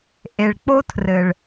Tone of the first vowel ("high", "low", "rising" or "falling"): low